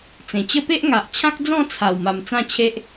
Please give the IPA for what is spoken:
t͡s ẽ˨˩ t͡ɕ ə˦ p e˦ ʔ ŋ a˨ ʔ t͡ɕʰ ã˦ k̚ d͡z ɔ̃˥˧ t͡sʰ a˨˩ w m a˨˩ m t͡s ã˥˧ t͡ɕʰ e˦ ʔ

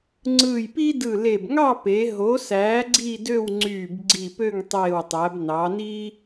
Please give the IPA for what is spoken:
ŋ͡ǀ ɯː˧˩ j p i˥ d ɯ˧˩ l e˧˩ b ŋ ɑ˥˧ p e˩˧ ɦ o˩˧ s æː˩˧ ɡ͡ǀ i˥˧ d ø˥˧ w ŋ͡ǀ yː˧˩ b ɡ͡ǀ i˧˩ p ø˥˧ ŋ tˤ eː˧˩ w tˤ æ˩˧ b n ɑ˩˧ n i˥

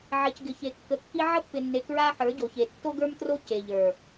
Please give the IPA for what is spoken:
ʕ e˨ c ɡ ɪ˨ ç e˨ kː ə˨ kː i˦ ʕ ə˦ pː ɪ˨ nː e˨ k ɹ a˦ ħ ə˞˨˦ ɟ o˨ ç e˨ tː o˦ ɡ ə˞˦ m t r o˦ c e˨ ʎ ə˞˨

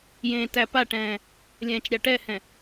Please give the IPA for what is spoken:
j ẽː t æ p a ʈ ɛ̃ː | lʲ ɛ̃ː t͡ʃ ɾʲ a ʈ ɛ h ɛ̃

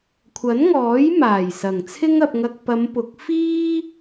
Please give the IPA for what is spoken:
kʷʰ ɐ˨˥ n ŋ ɔː˨˥ j m aː˨˩ j s ɐ˨˩ ŋ t͡sʰ ɪ˥ ŋ ɐ˧ p̚ ŋ ɐ˧ k̚ p ɐ˨˧ m p ʊ˨˥ k̚ f iː˥

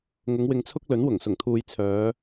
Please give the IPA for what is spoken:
ŋ ʊ˨˧ ŋ w ɪ˨ ŋ t͡sʰ ʊ˧ k̚ l ɵ˨˥ n w ʊ˨˩ ŋ s ʊ˨˩ ŋ t̪ʰ uː˨ j t͡sʰ œː˨˧

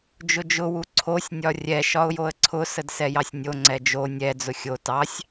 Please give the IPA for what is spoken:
d͡ʒ ʊ d͡ʒ ʊ w u ǀʰ o sʲ nʲ ɒ rʲ ɛ ʃ ɒ ʊ̯ j o ə̯ ǀʰ ʊ s ə d s ɛ j ɑ sʲ nʲ o ŋ͡ǀ ɛ d͡ʒ o nʲ ɛ d͡z ʊ xʲ o t ɑ sʲ

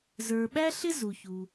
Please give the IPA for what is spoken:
z ə˞˩ ɓ æ˥ ɬ ɪ˥ z u˩ ç u˩

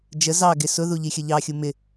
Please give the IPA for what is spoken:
d͡ʒ ə z ɑ ɡ ɪ s ʊ ð u ʎ i xʲ ə ʎ ɑ xʲ u m ɪ

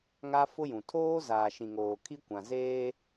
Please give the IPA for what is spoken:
ŋ a˦ f ʊ˦ j ũ˨ tʰ oː˦ z aː˨ ʃ ĩ˨ ŋ oː˨ kʰ i˦ kʷ ã˨ z eː˦

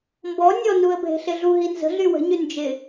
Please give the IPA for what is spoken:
m b ɔ nʲ ɔ n u ə̯ bʱ e̤ ɬ ɪ ɮ u ɦ i n z ə̤ ɮ y w ə̤ ɲ y n d͡ʒ ɪ

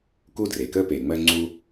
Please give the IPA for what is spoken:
k u˥ d r e˩ k ə˥ p e˩ ŋ͡m ɜ˥ ŋ͡ǀ u˥

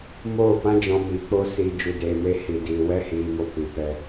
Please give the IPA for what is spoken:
m oː˦˨ p ã˦ d͡ʒ ɔ̃˧ m iː˨ k͡p o˦ s iː˨ d͡ʒ u˨ d eː˨ m e˧ h i˨ d iː˨ w ɛ˦ h iː˨ m o˧ p i˨ p ɛ˧

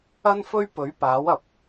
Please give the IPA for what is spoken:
ɐ˥ n f ɵ˥ ɥ p ɵ˨˥ ɥ p aː˨˥ w ɐ˨˥ p̚

